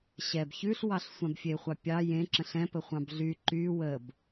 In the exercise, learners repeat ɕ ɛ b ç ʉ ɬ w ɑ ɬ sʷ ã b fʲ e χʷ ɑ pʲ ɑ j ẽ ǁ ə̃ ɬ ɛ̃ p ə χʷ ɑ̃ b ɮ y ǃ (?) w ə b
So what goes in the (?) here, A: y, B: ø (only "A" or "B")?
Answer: A